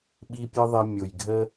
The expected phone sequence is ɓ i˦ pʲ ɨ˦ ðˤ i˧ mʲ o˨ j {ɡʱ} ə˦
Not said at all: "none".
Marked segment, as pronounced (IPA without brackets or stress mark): ɡʱ